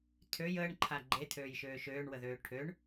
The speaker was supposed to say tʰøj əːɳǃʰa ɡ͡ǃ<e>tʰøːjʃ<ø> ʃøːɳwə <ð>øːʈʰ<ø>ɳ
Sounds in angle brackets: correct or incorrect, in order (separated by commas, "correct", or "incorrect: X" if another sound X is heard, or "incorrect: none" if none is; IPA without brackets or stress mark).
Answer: correct, incorrect: øː, correct, correct